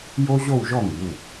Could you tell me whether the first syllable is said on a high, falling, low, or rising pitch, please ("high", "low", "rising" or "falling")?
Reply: high